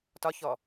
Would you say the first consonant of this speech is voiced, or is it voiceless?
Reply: voiceless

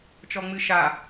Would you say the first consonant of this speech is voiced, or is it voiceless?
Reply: voiceless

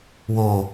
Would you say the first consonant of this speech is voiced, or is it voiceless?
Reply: voiced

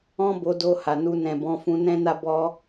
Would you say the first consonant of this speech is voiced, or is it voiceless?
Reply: voiced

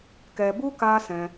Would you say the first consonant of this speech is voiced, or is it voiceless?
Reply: voiceless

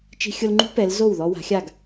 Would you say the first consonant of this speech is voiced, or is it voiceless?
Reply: voiceless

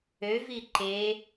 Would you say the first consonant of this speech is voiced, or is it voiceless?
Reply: voiced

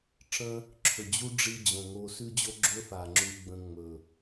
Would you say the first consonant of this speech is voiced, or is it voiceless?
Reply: voiceless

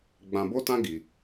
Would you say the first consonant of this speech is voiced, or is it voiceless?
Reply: voiced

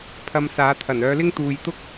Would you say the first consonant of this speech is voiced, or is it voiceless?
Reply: voiceless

